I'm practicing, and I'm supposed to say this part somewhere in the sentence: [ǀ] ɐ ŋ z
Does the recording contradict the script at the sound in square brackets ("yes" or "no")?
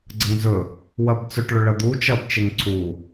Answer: yes